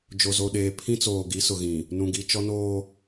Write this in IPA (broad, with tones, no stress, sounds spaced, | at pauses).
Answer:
d͡ʒ o˨ z o˨ ɗ eː˨ pʰ ĩ˦ t͡s oː˨ ɡ i˨˦ s ʊ˨ ɣ ĩ˨ | n ũ˨ ɡ i˨ t͡ʃ ɔ˦ n oː˦